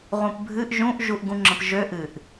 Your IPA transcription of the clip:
ʁ ũ p bʱ ɨ ʔ ʒ ũ ʔ ʒ u ʔ ɡ ũ ŋ͡ǁ ə̃ p ʒ ø ʔ ɨ ʔ

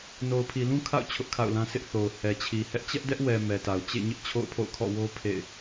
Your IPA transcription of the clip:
n o˨ ʊ̯ pʰ i˨ l ũ˦ kʰ a̰˦˨ ʊ̯ t͡ɕʰ ʊ˦ ʔ kʰ a̰˦˨ ʊ̯ l ã˦ sʰ ɪ˦ ʔ θ o˨ ʊ̯ h ɛ˨ t͡ɕʰ i˨ h ɛ˦ ʔ t͡ɕ ɛ˦ ʔ d ɛ˦ ʔ w ɛ˨ m ɛ˨ t a˨ ʊ̯ t͡ɕ ḛ˦˨ ɲ ɪ˦ ʔ t͡ɕʰ o̰˦˨ ʊ̯ pʰ o̰˦˨ ʊ̯ kʰ ɔ̰˦˨ w o˦ pʰ ḛ˦˨ ɪ̯

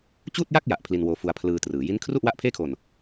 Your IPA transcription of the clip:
t͡ɕ uː˥˩ t̚ j a˥˩ k̚ j a˨˩ ʔ pʰ l i˧ n w oː˧ f u˧ a̯ pʰ l ɯː˧ t r ɯː˩˦ j i˦˥ n kʰ r u˥˩ ʔ w a˦˥ ʔ pʰ eː˥˩ kʰ o˧ n

